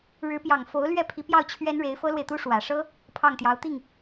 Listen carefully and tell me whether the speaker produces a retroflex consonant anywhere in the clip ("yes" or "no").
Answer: yes